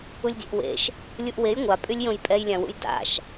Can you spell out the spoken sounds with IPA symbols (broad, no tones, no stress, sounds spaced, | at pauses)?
u lʲ dʲ ḛ ʔ w ḛ ʃ | lʲ u ʔ w e j ŋʷ a pʼ y lʲ j õ j pʼ ɛ j lʲ ã w ṵ j d a̰ ʃ